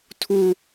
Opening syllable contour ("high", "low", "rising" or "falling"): high